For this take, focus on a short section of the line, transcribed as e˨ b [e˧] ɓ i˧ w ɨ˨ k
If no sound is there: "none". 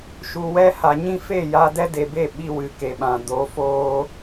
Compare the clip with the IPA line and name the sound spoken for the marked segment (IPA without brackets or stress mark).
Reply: e˦˨